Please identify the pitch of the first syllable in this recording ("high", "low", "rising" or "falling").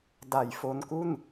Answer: low